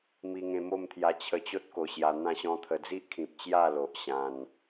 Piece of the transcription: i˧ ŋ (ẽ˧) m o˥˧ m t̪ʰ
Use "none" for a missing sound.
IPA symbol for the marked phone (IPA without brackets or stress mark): ẽ˧